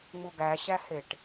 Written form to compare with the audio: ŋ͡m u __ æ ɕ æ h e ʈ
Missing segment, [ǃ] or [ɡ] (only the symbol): ɡ